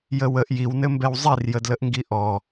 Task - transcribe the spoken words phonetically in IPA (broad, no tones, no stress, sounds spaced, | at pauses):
j ə w ə ʔ j i w n ɘ m b ɛ w zˤ i r j ə d l ə ʔ ŋ ɡ i ʔ ɔ